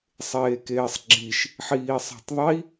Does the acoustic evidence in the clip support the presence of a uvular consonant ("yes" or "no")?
no